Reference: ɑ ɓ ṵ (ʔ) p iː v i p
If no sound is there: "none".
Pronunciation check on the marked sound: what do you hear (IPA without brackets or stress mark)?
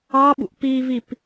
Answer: ʔ